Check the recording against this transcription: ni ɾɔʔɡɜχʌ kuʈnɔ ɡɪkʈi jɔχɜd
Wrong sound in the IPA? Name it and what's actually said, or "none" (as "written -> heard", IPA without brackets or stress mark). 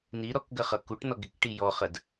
ʔ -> k